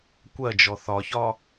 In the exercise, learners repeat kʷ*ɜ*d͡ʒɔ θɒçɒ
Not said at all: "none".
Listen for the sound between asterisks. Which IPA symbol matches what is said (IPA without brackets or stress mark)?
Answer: ɜ